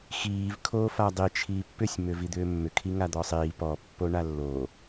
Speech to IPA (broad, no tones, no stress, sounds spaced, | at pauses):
x iː v kʰ oː f a dˤ i t͡ʃʰ iː pː ʏ sʲ m ʏ v i d̪ ʏː mː ʏ kʰ i ŋ a d̪ ɔ sˤ iː p ɔ pː o ɳ a lː oː